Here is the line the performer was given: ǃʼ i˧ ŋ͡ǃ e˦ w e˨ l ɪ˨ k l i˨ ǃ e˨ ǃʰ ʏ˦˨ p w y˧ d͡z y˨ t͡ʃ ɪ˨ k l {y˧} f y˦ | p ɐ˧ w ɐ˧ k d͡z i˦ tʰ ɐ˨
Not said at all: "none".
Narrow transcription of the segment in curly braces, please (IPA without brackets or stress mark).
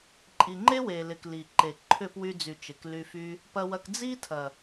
y˧